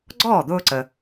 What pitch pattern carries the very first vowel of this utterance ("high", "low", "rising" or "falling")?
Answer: falling